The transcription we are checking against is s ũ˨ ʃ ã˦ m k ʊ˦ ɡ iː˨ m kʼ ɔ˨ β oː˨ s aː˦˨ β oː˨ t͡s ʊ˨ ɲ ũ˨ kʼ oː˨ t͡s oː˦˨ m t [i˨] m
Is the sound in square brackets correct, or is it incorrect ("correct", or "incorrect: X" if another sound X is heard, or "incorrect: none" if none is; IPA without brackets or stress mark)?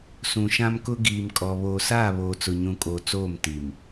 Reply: correct